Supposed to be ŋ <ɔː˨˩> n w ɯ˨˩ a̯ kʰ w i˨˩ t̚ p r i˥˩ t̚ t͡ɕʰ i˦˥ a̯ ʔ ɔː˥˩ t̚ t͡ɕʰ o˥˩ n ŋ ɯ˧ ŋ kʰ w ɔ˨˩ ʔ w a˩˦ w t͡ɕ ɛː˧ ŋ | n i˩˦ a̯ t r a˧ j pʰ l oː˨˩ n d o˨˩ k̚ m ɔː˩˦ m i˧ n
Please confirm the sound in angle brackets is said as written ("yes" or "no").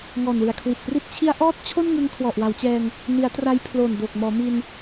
yes